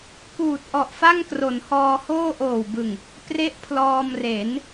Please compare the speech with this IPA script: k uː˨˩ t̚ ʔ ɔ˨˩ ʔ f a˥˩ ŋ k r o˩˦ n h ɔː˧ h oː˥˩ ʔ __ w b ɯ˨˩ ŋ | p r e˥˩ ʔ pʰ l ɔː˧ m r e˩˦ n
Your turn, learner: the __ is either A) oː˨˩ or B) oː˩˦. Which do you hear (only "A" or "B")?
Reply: A